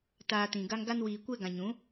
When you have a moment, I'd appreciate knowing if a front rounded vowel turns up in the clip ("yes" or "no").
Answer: no